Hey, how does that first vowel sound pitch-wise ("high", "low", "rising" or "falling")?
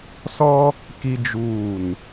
high